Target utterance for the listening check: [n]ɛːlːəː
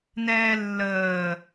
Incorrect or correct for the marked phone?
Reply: correct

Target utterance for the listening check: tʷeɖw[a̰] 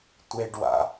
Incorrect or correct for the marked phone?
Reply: correct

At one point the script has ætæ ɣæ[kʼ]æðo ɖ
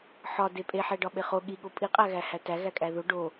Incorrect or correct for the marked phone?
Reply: correct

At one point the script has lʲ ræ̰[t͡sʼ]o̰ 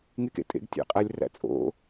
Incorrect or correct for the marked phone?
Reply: correct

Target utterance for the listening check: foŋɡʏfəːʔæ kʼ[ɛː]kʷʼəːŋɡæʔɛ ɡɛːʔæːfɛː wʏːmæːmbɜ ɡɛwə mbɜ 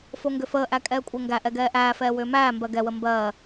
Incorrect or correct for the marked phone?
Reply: correct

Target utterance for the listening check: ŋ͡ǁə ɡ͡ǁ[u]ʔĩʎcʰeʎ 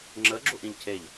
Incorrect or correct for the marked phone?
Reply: correct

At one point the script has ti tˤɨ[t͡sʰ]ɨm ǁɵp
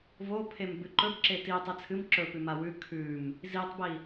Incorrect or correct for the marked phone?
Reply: correct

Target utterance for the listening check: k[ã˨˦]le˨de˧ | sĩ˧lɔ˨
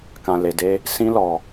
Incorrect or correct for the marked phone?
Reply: incorrect: ã˨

